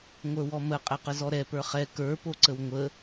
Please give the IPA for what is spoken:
ŋʷ ə˞ w ɔ m ə qʼ ɛ q ə z ɔ ɾ ɛ p ə˞ χ ɛ k ə˞ p o ǀ ə w ŋʷ ə

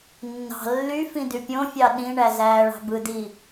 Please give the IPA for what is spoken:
nː ɑ̤ lː y f ĩ d y pʲ õ fʲ ɑ ɗ ĩ ɳ æ z æː ɭ ɑ̤ b ɯ d i

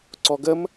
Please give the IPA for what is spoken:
ǀ ɔ ɡ ə m

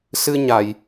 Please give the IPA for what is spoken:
s ɨ˧ ɲ a˨˩˨ j

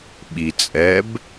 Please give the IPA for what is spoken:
ɓ i t͡sʼ ɛ b

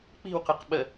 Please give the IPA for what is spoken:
k͡p i̤ w q ɯ q ɓ ə

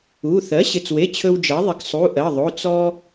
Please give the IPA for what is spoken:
u˩˧˩ θ ɜ˩˥ ɕ ɪ˩˧˩ t͡s w e˩˧˩ t͡ɕʰ ɵ˧ w d͡ʒ ɜ˩˥ ðˤ ɪ˩˥ ɡ sˤ u˩˧˩ ʔ ɜ˩˧˩ ðˤ o˩˧˩ t͡s ɔ˧

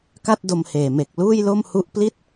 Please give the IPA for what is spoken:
k a˥˩ t̚ d o˧ m h eː˨˩ m e˨˩ k̚ l uː˥˩ j l o˥˩ m h u˦˥ ʔ p l i˥˩ t̚

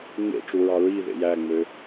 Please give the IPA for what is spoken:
ŋ͡m ḛ ʈ͡ʂ u ɹ ɑ ɹ i ð ḛ j æ ŋ͡m ø

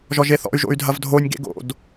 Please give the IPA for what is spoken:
ʒ ɔ ʒ e θ ɔ̰ y̯ ʒ o̰ y̯ dʱ ɐ v dʱ o nʲ ɡ ḛ ɡ o̰ d

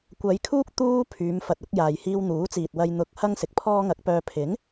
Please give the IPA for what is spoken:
kʷ ɐ˨˧ j kʰ uː˥ k̚ t̪ uː˧ pʰ yː˨˧ m f ɐ˨ t̚ ɐ˨˥ k̚ j aː˨ j h iː˧ w n̪ uː˨˥ t͡s iː˨ t̚ w ɐ˧ j n̪ ʊ˨˥ k̚ h ɐ˥ ŋ s ɪ˨˥ k̚ pʰ ɔː˥ ŋ ɐ˨˥ k̚ p œː˨ pʰ ɪ˨˥ ŋ

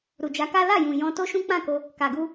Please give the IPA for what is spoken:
ɾ u˨ d͡ʒ a˨˦ k a˦ l a˦˨ j ũ˨ j ɔ̃˧ t o˦ ʃ ũ˦ k͡p ã˦˨ k o˧ | k a˨ ɡ u˧

